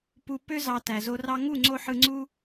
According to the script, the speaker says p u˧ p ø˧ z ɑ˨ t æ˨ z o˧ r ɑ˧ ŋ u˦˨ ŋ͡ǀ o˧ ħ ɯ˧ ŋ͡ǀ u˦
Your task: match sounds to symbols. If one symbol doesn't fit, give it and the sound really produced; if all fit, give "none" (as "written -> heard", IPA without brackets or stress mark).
none